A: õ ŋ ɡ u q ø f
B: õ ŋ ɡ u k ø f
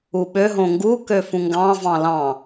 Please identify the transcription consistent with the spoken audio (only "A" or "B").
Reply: B